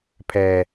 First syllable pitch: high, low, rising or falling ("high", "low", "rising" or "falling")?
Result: low